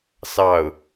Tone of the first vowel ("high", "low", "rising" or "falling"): falling